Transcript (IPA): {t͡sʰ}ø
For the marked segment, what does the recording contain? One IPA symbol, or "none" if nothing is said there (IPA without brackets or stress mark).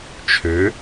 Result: t͡ʃʰ